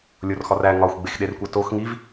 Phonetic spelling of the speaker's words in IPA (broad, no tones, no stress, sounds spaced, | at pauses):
lʲ o r x ɒ r æ ŋ ɒ xʷ ɡ͡b e x ɗ e r kʷ æ t o x ŋ i v